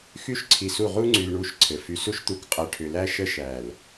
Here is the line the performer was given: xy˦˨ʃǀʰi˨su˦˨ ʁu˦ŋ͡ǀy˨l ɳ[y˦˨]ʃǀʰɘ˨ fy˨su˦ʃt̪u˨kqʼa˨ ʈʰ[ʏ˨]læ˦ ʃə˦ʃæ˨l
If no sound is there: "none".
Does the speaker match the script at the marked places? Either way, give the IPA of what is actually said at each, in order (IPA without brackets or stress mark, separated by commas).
u˦˨, ʏ˨